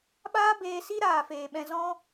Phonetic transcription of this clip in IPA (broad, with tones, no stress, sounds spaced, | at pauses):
ɓ aː˦ b eː˧ s i˦ ɾ aː˨ f eː˨ ɓ ɛ̃˧ z ɔ̃˦